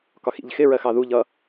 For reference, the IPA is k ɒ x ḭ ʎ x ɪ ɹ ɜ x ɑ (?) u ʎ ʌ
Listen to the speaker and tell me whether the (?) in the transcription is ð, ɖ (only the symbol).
ð